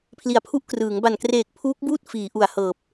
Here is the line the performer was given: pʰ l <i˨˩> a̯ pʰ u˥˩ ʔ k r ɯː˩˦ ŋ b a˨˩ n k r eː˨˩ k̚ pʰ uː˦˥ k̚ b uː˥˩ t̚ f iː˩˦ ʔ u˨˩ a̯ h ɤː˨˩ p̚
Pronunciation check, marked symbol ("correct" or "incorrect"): correct